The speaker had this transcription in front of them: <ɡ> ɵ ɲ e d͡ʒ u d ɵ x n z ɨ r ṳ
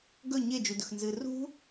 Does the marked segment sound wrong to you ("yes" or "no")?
no